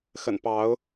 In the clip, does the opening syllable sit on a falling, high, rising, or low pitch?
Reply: low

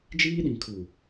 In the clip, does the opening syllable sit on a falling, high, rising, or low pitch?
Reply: high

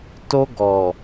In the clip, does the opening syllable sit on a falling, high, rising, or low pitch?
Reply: high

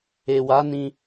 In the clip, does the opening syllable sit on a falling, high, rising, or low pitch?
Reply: low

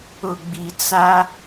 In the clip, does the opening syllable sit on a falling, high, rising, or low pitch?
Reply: low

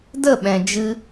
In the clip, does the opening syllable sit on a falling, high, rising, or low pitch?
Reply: falling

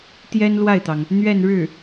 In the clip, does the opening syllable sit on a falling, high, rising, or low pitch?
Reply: high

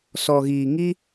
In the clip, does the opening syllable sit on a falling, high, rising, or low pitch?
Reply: low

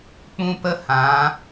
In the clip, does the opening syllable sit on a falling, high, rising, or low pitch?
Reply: high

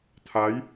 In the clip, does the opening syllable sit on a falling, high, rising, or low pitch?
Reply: rising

